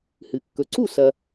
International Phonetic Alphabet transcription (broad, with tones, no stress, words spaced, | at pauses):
hɨ˩kːɵ˩ ǀu˥˩sɐ˩